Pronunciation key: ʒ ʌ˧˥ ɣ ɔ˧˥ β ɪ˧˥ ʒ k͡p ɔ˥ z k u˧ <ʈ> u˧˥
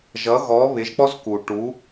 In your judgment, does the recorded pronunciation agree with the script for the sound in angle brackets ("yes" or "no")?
yes